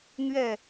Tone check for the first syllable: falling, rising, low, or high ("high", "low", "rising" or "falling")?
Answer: falling